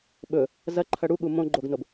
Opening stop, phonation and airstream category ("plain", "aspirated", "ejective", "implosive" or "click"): implosive